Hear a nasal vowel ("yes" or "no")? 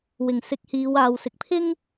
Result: no